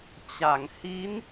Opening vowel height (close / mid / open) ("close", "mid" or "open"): open